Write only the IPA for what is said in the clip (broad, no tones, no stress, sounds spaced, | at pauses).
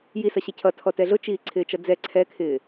j i s ʌ ɕ ɛ cʰ ʌ tʰ ɔ t ɛ ɮ ʊ t͡ʃ iː ǀʰ ɪː t͡ʃ ʌ d͡z ɛ ǀʰ ɛ kʰ ɪː